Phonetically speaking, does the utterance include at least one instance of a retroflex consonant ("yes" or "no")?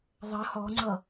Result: no